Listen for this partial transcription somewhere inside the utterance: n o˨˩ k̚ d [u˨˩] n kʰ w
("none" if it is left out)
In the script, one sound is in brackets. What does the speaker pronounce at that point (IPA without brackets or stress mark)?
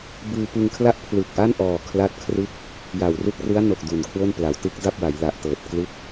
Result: u˨˩